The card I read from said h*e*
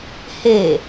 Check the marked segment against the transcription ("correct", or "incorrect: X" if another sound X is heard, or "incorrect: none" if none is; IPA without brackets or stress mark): correct